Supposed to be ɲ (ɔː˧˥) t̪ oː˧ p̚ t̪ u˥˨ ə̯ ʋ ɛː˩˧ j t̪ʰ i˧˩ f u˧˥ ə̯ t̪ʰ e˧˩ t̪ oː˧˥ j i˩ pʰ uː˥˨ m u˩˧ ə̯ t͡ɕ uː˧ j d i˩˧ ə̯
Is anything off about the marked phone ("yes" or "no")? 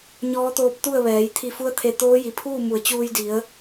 no